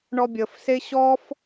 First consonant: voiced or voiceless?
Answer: voiced